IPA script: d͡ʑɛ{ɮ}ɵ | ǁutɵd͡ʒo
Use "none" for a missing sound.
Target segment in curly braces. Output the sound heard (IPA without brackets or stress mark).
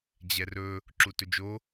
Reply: r